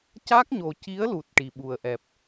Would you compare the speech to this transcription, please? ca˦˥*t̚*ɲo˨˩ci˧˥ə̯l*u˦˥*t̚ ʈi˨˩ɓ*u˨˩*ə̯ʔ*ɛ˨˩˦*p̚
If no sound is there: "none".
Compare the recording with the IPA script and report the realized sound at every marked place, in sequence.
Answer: k̚, u˨˩, u˨˩, ɛ˨˩

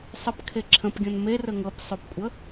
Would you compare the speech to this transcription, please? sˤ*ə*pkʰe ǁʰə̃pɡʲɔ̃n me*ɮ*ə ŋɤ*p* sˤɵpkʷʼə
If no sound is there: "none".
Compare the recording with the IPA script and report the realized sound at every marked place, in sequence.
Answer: ə, r, p

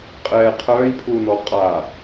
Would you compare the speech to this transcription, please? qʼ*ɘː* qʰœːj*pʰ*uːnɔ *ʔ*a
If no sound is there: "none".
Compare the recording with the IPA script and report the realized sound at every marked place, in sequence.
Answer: ɛː, pʰ, qʼ

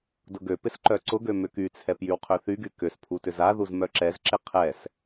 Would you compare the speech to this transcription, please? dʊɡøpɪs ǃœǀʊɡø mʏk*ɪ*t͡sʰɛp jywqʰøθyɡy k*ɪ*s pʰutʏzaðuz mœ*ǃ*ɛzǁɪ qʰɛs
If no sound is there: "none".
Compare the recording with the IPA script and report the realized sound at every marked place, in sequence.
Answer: y, ʏ, ǁ

